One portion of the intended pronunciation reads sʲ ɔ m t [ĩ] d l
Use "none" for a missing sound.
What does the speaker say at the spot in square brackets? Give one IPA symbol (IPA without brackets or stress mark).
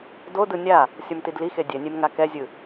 i